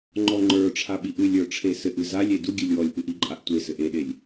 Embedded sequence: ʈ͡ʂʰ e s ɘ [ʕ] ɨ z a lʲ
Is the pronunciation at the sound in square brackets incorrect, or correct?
incorrect